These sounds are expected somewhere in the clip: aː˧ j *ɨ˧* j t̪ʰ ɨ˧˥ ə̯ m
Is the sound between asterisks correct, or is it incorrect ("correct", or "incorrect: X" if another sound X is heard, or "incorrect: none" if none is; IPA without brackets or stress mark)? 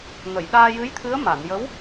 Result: incorrect: ɨ˧˥